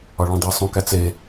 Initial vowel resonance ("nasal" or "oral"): oral